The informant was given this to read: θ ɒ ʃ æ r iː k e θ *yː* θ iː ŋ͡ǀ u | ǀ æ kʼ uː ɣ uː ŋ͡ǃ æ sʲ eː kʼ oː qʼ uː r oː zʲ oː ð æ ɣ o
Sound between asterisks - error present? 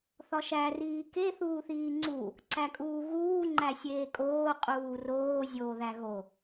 yes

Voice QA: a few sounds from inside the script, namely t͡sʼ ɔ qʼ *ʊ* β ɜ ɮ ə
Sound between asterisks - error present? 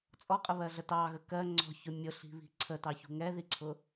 yes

